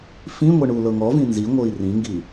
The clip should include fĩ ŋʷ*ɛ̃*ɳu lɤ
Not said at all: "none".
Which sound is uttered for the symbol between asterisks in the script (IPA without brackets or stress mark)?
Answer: ɛ